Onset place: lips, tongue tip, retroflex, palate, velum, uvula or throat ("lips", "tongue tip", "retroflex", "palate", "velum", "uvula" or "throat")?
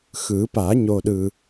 velum